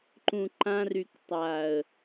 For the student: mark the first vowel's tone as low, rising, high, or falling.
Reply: low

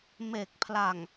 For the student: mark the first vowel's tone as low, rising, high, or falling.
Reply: low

